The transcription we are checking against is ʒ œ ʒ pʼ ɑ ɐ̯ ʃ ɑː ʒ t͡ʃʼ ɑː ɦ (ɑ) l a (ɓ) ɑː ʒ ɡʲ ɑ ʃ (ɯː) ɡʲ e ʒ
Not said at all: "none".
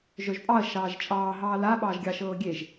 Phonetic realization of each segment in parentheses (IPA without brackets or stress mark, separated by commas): ɑː, ɓ, ɤː